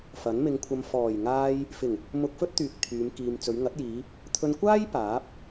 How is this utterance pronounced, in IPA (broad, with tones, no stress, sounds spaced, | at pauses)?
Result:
f ɐ˨˥ n m ɪ˧ ŋ kʷʰ ɐ˧ m f ɔː˨˩ j ŋ aː˧ j | f ɪ˨˩ ŋ | m ʊ˧ k̚ f ɵ˥ t̚ t̪ yː˨ k̚ t̪ʰ yː˨˧ m k iː˨ m t͡s ɵ˨˧ ɥ ŋ ɐ˨˥ t̚ j iː˨˧ | t̪ʰ ɵ˧ n kʷ aː˥ j p aː˨˥ p̚